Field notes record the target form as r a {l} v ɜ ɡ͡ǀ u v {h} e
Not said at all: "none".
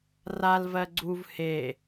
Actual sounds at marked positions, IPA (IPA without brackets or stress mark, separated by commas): l, h